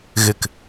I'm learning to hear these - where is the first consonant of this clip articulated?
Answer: velum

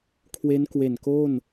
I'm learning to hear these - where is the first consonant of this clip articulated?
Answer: velum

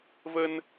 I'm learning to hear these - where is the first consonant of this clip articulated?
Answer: lips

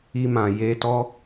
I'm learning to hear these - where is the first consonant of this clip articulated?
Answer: lips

